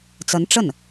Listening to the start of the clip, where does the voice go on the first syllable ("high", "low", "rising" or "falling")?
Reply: rising